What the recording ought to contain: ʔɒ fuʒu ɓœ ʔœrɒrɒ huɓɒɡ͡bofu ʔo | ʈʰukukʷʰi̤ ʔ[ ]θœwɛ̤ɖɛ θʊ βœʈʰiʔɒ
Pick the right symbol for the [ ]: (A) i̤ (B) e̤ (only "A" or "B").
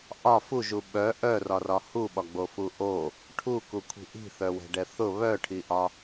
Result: A